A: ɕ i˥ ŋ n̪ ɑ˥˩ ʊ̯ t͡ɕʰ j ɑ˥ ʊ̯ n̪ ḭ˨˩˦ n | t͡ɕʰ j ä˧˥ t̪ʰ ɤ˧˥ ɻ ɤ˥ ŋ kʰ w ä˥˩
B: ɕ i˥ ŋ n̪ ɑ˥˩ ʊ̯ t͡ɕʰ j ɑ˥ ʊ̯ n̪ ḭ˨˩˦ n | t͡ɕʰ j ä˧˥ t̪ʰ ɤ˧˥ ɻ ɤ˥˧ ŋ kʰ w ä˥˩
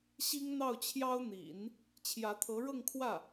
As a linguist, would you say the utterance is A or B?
B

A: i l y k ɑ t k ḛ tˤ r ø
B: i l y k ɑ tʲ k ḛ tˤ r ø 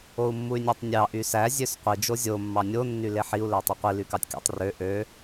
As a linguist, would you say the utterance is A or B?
B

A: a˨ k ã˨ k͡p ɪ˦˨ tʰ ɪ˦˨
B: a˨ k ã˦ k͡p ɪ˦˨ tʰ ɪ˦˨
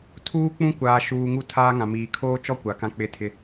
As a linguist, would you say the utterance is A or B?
B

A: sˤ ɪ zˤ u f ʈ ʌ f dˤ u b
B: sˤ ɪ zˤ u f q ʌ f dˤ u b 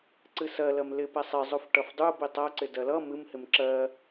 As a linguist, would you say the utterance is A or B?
A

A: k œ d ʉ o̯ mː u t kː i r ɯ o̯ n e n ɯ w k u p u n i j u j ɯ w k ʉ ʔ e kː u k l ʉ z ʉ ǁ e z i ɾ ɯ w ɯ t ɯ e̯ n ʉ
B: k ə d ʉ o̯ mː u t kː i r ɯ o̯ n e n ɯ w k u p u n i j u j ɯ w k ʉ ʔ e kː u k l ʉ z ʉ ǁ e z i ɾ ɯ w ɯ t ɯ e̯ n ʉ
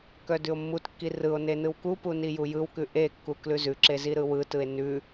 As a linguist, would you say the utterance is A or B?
A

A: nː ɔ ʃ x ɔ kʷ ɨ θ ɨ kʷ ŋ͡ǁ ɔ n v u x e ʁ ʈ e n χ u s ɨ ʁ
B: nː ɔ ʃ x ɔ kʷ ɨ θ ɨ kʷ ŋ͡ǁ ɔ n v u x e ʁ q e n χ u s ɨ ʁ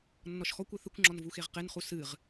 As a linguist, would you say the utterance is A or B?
B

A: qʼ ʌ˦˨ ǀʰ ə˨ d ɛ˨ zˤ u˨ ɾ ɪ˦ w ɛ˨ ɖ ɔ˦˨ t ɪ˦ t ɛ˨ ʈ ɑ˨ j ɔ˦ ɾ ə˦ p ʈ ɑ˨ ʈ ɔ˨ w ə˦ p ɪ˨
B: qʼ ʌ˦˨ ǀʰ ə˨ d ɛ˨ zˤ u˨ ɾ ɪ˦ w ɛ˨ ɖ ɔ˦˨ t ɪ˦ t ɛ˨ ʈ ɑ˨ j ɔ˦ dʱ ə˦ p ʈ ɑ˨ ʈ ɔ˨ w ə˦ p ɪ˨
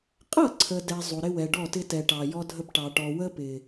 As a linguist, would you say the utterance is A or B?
B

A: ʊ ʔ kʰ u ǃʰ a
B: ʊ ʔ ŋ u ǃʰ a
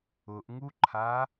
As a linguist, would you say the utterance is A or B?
B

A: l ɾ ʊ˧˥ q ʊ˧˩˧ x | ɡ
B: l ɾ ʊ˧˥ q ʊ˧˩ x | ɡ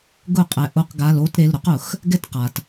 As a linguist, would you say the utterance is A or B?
A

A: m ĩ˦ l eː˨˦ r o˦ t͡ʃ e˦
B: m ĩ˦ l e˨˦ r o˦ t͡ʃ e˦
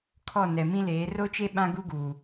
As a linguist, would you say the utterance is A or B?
A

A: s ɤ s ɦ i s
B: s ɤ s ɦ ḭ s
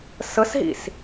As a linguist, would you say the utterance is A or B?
B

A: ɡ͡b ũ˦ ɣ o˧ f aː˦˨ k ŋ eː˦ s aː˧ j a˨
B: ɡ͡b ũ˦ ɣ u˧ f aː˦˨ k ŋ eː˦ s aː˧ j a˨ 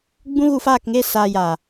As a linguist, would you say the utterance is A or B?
B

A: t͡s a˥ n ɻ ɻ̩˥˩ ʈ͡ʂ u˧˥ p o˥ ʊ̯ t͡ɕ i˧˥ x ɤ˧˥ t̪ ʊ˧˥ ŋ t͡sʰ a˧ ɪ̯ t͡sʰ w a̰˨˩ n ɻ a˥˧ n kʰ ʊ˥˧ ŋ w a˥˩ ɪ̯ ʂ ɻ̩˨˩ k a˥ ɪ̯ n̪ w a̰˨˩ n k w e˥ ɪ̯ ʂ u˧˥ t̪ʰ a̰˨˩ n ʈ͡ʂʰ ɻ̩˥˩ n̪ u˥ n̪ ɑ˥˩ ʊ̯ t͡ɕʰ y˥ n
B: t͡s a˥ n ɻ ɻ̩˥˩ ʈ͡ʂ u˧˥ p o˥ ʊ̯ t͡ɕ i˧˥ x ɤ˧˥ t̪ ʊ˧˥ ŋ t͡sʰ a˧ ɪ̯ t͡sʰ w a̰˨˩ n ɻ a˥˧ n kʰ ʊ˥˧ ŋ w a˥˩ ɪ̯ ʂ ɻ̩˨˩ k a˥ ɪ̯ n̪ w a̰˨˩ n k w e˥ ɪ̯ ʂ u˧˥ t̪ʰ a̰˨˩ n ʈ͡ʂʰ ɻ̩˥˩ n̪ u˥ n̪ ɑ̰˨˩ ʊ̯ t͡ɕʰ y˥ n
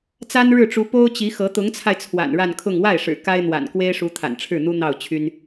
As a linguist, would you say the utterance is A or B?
A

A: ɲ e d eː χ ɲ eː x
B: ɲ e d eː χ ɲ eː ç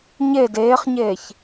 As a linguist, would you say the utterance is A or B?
B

